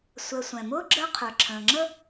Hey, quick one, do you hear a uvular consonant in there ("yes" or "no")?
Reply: yes